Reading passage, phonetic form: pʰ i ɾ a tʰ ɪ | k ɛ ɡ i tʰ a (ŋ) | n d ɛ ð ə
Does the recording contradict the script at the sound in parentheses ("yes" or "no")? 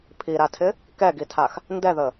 yes